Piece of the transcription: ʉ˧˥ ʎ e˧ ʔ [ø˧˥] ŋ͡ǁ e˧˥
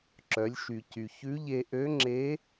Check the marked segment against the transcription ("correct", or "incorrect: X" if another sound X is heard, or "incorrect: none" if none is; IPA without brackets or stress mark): correct